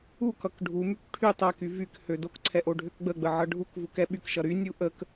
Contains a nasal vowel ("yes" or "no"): no